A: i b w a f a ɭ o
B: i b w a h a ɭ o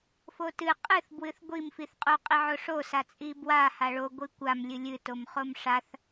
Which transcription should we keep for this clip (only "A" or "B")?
B